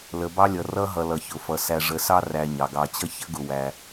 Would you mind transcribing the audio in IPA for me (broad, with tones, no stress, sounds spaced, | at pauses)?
l ə˨ b ɑ˥ lʲ ʌ˨ r ʌ˥ ɦ ʌ˨ l ʌ˩ ç ʊ˩ f ʌ˩ s æ˨ ʐ ə˨ s ɑ˦ r æ˨ ɲ ɑ˩ ɡ ɑ˨ t͡ɕ ʌ˥ ç ə˥ ɡ ʊ˨ w æ˨